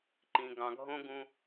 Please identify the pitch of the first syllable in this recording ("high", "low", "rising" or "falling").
low